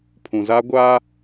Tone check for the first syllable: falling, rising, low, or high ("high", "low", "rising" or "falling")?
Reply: low